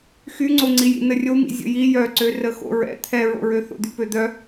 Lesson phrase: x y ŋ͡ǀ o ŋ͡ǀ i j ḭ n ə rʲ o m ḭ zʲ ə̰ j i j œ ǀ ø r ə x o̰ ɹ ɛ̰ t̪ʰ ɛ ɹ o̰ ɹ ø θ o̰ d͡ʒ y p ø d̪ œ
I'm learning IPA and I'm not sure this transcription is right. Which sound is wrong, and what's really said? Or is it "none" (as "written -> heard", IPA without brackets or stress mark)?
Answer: d͡ʒ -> d̪